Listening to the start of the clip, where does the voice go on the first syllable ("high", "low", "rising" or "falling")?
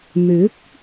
rising